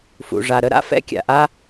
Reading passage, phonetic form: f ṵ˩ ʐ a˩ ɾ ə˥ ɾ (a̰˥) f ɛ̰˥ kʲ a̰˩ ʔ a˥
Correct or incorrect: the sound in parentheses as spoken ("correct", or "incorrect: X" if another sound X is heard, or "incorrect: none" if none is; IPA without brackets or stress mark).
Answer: correct